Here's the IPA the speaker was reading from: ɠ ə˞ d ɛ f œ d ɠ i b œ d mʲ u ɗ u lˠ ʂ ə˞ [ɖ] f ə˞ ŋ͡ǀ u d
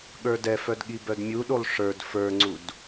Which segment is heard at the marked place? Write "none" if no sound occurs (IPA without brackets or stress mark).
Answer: d